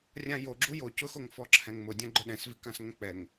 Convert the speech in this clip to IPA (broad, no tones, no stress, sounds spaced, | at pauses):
rʲ ã j o ɡ͡ǁ u j o c ʊ x o ŋ f ɔ ǁʰ ɛ̃ ŋ m ʊ dʲ ã ɡ͡ǃ ʊ ɗ ɛ̃ s v i k ã s ŋ ɛ̃ k͡p ɛ ŋ